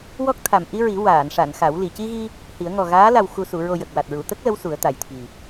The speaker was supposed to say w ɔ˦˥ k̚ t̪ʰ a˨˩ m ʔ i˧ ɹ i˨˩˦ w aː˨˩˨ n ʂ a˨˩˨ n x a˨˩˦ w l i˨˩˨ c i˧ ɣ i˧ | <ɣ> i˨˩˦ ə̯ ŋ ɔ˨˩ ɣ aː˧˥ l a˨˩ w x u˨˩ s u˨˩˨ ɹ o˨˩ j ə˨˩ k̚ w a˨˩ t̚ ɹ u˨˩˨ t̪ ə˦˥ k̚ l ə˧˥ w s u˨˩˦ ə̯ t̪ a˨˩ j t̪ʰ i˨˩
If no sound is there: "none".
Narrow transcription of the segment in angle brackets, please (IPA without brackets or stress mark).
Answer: h